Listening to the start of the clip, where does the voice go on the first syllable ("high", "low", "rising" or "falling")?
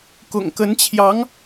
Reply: low